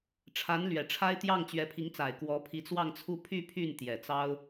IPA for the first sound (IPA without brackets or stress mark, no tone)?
ʈ͡ʂʰ